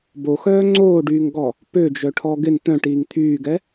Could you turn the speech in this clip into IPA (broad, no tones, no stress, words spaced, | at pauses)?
boxœː ŋ͡ǀoːɖyːŋɡɔ | pød͡ʒœʈʰɔ ɡɪn t̪œ̃ʈiːŋ t̪ʰyːɡɛ